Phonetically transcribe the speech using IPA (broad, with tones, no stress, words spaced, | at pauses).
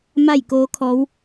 ma˥˨jkoː˧˥kʰɔː˧˥w